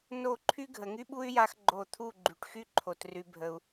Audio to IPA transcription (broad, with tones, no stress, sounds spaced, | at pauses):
n o˦˨ ǃʰ y˦ ɡʱ ə˨ ŋ y˦ ɓ u˦ y̯ j a˦ x ɡ͡ǃ o˦˨ t̪ʰ u˦˨ ɡ͡ǃ y˨ ʈ x y˦ ǃʰ o˨ t r y˨ bʱ ə˨ u̯